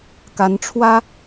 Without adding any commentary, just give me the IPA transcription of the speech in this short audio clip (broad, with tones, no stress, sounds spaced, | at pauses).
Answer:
k a˧˥ n ʈ͡ʂʰ w ä˥